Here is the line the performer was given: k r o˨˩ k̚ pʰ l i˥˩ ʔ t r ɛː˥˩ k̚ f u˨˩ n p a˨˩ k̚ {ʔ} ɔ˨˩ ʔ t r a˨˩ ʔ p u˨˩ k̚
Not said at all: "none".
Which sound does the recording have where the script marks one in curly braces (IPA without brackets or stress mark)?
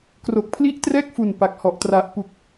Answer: h